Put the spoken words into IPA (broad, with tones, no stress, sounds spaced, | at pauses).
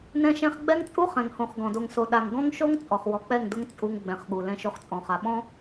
n ɛ̃˦ ʃ ɛ̃˦ χ ɡ͡b ɛ˦ ŋ t͡sʼ u˦ χ ɛ̃˨ ŋ h õ˨ χ ɡ ɔ̃˨ d o˨ ŋ s o˨ ɗ a˨ ŋ ɡ ɔ̃˦ ŋ ʃ o˦ ŋ t͡sʼ ɔ˨ χ w ɔ˨ k͡p ɛ˦˨ ŋ d ʊ˦ ŋ t͡sʼ u˦ ŋ ɡ͡b ɛ̃˨ χ ɠ u˨ l ɛ̃˦ ʃ o˦ χ t͡sʼ ɔ̃˨ χ a˨ ɓ ɔ̃˦